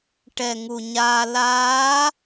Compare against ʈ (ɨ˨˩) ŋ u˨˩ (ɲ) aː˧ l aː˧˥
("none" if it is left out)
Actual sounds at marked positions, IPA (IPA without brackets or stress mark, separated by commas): ɛ˨˩, ɲ